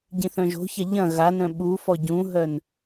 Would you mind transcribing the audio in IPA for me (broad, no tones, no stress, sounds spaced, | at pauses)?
ɟ ĩ θ œ̃ ʒ o̤ ç a ʎ ɐ̃ ɣ a n œ̃ ɓ u f ɔ ɟ ũ ɦ œ n